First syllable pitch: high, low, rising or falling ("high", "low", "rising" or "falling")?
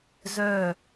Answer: falling